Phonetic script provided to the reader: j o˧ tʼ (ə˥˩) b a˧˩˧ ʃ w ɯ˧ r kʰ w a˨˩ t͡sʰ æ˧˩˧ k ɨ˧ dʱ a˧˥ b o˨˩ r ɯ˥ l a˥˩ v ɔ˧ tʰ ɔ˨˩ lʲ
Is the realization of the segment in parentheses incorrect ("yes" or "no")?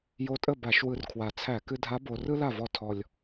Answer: no